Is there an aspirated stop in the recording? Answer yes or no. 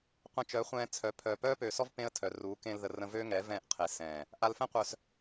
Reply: yes